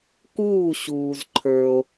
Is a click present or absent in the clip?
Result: present